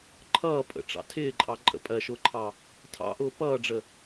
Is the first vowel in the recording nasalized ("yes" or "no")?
no